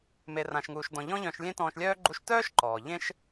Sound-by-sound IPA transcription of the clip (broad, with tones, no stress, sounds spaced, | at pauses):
m e˩ r ã˩ ʃ ŋ uː˩ ʃ d ɔ̃˩ ʎ ɔ̃˥ ʎ œ̃˧ ʃ lʲ ẽ˥ t ɔ̃ː˧ ʃ lʲ œː˥ ɡ͡ǃ u˧ ʃ t œː˥ ʃ ǃ ɔː˩ ʎ ẽ˥ ʃ